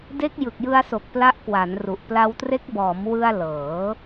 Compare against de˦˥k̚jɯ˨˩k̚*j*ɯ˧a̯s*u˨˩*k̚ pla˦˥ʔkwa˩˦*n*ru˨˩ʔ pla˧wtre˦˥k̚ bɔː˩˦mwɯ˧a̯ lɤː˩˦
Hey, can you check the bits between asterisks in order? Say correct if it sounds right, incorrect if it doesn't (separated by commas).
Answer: correct, incorrect, correct